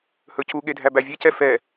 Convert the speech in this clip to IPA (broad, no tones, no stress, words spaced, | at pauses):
hɵcuɠe dʱæbævʲecɛ fɛ